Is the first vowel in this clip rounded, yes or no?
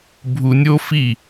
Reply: yes